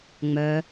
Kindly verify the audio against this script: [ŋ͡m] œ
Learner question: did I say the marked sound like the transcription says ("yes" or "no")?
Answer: yes